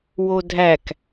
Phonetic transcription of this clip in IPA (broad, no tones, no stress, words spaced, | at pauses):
wodʱæk